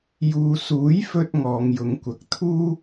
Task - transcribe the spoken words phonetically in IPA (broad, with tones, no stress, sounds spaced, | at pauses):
j uː˨ s uː˨˥ j f ɵ˧ t̚ ŋ ɔː˨˧ ŋ j ʊ˨˥ ŋ kʷ ɐ˨˥ k̚ t̪ʰ uː˥